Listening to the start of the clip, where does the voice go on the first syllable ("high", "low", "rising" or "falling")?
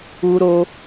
high